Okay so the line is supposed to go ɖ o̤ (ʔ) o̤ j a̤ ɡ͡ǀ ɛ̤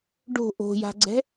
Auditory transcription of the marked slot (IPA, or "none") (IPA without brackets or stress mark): ʔ